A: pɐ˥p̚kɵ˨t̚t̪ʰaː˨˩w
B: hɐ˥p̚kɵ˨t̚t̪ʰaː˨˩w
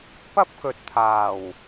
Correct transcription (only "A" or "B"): A